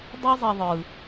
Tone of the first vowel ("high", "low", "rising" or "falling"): high